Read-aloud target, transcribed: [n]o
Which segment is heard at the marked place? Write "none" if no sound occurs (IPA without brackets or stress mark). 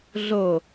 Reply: ɮ